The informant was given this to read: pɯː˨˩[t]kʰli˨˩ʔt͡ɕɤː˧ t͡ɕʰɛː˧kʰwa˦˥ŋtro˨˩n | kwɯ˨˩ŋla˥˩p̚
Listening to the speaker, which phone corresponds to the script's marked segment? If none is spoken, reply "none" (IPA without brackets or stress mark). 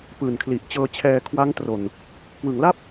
n